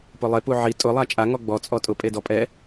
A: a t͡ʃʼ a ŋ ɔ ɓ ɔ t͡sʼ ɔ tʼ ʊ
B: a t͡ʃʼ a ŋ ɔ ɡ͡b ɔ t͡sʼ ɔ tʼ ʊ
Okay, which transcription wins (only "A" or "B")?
B